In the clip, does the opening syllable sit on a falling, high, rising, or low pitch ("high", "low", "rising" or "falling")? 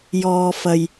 low